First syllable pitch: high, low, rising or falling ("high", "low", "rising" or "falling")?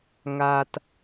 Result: low